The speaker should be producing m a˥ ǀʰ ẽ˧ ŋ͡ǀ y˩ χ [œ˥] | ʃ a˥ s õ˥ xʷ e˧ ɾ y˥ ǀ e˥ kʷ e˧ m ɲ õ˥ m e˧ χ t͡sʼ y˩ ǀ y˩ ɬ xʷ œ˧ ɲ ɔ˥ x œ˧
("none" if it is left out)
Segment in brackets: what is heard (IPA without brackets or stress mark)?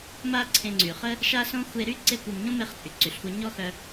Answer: ə˥